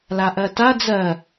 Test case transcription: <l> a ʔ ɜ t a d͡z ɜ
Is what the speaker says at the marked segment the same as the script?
yes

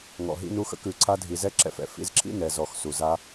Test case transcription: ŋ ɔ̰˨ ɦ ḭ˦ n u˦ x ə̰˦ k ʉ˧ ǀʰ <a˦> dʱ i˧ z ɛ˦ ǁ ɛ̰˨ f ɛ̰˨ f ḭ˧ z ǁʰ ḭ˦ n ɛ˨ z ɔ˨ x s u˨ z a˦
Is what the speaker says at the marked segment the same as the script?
yes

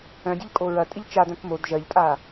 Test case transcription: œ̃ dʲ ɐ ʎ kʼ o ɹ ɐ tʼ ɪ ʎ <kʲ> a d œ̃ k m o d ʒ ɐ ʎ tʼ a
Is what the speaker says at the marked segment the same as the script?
no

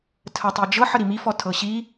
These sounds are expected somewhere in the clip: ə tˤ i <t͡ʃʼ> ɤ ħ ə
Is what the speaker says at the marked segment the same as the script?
no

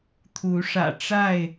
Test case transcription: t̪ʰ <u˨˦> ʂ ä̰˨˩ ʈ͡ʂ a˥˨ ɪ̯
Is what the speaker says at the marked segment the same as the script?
yes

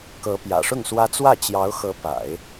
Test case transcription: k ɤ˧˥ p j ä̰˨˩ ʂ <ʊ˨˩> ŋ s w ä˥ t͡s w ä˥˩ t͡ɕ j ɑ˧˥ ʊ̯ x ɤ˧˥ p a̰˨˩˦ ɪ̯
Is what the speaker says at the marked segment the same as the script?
no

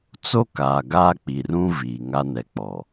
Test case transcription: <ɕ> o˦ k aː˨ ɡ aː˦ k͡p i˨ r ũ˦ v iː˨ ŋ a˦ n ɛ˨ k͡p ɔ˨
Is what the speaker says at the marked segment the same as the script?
no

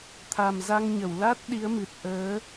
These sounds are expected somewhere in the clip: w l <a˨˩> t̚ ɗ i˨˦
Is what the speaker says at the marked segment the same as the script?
no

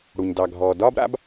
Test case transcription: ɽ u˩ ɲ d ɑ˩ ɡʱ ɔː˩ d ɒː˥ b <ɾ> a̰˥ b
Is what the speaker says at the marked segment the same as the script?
yes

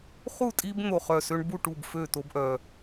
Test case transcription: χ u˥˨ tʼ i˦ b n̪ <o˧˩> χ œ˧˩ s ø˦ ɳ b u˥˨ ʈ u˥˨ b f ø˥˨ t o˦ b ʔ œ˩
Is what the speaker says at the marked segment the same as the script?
yes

